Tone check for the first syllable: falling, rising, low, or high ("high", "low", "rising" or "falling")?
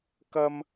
high